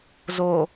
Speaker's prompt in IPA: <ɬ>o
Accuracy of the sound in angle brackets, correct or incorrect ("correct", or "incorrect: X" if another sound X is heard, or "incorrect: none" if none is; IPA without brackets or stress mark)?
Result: incorrect: z